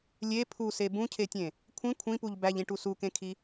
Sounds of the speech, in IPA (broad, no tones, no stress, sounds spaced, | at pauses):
lʲ e pʰ u s e b ũ cʰ e tʲ ẽ | kʷʰ ĩ kʷʰ ĩ p u ʎ b æ ʎ ĩ ʈ u s u k ẽ kʰ i